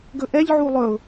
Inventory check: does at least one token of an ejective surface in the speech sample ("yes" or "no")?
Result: no